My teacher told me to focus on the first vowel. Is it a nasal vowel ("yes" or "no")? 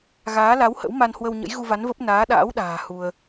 no